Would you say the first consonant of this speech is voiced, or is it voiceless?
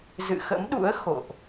voiced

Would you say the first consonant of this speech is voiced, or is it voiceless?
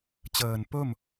voiceless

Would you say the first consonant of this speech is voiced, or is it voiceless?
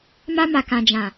voiced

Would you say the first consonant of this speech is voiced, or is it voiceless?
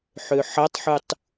voiceless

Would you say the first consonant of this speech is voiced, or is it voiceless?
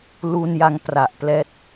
voiced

